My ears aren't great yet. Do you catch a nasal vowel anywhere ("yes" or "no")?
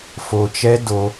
no